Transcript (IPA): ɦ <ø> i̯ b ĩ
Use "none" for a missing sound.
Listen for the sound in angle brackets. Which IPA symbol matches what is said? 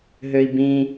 ø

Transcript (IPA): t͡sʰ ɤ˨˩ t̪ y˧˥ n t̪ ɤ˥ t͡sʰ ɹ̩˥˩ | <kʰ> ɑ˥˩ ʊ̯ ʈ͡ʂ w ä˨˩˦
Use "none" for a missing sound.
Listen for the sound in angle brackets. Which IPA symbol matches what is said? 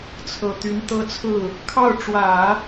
kʰ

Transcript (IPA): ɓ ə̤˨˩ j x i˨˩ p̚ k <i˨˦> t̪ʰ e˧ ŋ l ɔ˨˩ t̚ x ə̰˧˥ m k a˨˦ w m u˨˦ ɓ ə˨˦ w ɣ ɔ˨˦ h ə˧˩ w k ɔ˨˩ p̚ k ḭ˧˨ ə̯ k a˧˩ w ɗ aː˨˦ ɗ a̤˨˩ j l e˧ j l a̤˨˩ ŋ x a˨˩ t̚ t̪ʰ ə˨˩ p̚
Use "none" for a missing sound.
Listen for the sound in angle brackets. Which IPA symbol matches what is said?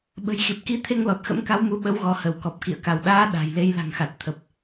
i˨˦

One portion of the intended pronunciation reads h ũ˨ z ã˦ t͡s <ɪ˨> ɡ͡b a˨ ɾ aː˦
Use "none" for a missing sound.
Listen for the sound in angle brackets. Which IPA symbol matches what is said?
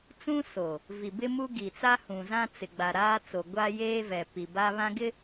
ɪ˨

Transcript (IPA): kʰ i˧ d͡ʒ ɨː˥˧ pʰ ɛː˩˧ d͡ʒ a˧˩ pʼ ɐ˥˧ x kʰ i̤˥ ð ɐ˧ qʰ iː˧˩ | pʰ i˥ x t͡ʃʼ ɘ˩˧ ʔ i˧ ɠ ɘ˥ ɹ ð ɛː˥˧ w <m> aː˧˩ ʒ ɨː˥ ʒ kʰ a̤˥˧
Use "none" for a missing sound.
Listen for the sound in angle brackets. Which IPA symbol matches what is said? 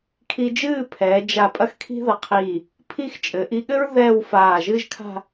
f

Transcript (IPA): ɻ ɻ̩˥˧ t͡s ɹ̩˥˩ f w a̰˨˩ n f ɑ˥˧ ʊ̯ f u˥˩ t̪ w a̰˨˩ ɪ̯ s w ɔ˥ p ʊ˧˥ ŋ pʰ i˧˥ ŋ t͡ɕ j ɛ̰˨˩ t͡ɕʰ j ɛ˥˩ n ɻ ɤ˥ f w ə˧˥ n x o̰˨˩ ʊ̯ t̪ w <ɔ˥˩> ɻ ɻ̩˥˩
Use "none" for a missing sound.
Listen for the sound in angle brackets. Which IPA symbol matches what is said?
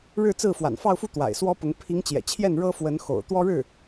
ɔ˥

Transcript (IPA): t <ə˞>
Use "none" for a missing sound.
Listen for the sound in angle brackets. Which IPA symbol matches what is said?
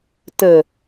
ə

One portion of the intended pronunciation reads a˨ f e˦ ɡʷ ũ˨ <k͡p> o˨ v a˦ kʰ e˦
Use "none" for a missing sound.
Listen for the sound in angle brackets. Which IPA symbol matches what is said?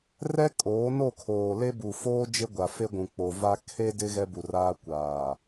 k͡p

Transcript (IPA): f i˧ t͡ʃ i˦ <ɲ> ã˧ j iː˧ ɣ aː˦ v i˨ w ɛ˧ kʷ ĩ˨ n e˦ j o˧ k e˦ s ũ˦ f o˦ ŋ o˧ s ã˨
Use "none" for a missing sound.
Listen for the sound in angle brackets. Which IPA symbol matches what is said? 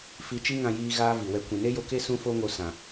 ŋ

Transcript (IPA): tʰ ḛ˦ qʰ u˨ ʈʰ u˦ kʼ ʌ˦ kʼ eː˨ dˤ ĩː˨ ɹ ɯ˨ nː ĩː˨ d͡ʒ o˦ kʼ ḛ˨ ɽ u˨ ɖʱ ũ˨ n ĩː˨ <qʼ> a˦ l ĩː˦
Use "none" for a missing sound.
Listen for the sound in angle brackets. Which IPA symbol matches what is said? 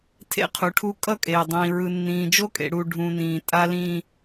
tʼ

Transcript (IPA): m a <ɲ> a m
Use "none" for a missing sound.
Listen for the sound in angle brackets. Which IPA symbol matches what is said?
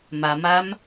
m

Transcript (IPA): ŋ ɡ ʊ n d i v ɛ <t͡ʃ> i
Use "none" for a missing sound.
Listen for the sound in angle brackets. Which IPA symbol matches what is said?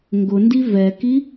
k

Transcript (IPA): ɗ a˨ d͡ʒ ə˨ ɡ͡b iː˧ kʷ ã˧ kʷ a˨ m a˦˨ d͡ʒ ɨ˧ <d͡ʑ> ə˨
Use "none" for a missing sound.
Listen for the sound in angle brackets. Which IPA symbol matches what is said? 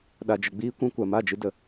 d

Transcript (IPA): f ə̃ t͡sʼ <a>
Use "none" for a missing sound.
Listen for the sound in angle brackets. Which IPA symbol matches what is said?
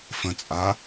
a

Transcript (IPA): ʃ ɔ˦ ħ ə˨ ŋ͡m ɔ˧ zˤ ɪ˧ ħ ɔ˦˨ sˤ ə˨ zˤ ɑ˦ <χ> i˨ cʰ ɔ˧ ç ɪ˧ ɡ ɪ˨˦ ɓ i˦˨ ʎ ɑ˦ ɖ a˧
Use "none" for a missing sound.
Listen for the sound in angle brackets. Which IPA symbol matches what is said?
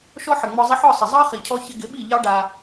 χ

